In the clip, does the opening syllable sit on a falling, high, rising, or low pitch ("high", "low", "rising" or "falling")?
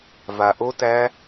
low